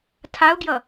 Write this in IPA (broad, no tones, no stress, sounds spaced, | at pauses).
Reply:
tʰ a ʊ̯ ɡ j ʌ